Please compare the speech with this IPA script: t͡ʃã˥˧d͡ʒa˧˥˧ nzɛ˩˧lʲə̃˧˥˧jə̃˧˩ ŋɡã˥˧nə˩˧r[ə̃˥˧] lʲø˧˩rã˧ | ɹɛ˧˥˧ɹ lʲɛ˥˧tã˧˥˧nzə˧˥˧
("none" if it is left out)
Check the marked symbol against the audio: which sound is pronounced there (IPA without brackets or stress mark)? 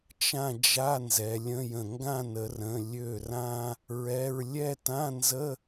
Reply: ə̃˩˧˩